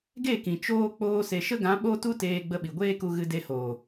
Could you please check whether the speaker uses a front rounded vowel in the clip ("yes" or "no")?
no